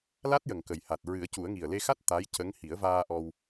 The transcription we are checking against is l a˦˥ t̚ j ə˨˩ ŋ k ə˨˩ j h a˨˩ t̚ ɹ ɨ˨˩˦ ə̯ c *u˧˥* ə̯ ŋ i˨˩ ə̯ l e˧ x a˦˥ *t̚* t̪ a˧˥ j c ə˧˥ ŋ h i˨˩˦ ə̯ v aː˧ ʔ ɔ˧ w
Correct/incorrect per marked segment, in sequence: incorrect, correct

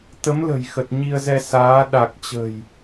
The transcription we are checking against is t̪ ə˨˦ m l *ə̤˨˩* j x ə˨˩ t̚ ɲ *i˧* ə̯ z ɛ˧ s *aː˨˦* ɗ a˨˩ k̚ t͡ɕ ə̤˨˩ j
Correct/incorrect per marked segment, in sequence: correct, correct, correct

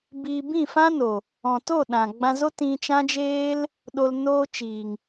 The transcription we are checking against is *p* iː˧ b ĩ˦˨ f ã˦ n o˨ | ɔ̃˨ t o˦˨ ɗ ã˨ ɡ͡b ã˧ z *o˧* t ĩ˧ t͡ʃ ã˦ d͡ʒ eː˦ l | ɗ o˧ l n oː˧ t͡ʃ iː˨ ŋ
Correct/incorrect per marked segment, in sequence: incorrect, incorrect

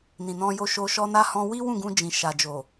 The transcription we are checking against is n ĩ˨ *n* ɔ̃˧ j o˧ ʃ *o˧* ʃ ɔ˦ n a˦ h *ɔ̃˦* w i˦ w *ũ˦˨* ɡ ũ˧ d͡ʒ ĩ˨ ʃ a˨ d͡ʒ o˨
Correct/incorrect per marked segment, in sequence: correct, correct, correct, correct

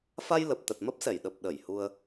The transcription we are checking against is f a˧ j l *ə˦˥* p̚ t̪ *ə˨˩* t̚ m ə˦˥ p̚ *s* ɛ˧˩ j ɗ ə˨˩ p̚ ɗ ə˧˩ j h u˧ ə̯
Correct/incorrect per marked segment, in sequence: incorrect, correct, correct

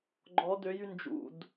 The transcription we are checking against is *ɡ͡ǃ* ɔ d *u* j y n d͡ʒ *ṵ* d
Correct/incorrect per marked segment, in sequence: correct, incorrect, correct

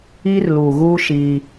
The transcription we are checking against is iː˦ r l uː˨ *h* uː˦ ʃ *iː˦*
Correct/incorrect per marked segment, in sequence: incorrect, correct

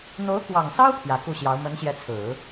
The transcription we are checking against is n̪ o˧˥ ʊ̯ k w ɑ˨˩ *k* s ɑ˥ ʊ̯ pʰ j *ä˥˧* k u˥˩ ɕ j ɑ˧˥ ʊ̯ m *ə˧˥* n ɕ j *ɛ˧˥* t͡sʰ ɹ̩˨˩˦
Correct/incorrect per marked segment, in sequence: incorrect, incorrect, correct, correct

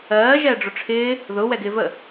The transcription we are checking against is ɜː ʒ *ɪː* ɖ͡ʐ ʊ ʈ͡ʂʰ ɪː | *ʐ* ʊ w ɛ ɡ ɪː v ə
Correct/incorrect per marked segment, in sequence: incorrect, incorrect

